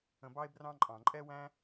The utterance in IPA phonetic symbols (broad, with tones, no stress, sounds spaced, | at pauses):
ə̃˧ b ɑ˦ e̯ b r ɑ̃˦ ǃʼ ɑ̃˨ ǃʼ ɛ˦ w æ̃˦